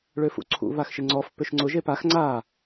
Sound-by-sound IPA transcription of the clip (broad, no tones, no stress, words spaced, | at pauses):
ɭøfṵǀʰṵ βaxʃɪŋ͡ǀɔf pʏʃŋ͡ǀʊ ʒepax ŋ͡ǀa